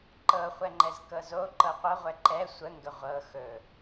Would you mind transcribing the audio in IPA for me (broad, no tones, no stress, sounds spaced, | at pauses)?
ǃ ɤ χʷ ɛ ŋ͡ǃ ɛ z k ɤ z o ǃ ɤ qʷ ɤ ʁʷ ɛ ǃ ɛ sʷ ə ŋ ɡ ə ʁʷ ɤ x ɵ